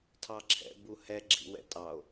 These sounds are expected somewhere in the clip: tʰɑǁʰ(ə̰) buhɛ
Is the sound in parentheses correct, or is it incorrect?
incorrect